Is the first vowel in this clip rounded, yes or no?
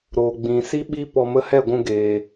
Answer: yes